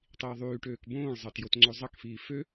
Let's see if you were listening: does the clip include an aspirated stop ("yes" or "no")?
no